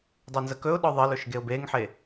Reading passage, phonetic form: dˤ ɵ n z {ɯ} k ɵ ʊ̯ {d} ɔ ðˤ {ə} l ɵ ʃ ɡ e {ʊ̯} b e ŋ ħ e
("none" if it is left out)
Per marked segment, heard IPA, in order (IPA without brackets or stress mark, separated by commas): ə, ɗ, ə, ʊ̯